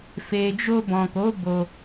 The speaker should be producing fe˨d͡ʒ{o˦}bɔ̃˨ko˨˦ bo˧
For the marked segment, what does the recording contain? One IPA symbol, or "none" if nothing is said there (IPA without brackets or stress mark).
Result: o˧